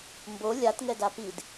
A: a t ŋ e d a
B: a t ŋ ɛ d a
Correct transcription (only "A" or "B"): B